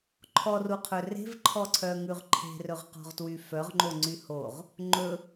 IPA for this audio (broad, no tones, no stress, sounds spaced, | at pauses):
ǃʰ ɔ r u qʰ ɵ r e̤ v ǃʰ ɔ ǀʰ œ ŋ ʉ ʁ ǃʰ e̤ r ɵ ʁ q ɔ̤ ʁ t w y f œ ʁ ŋ͡ǃ o ŋ͡ǀ y h o ʁ | ŋ͡ǃ ɵ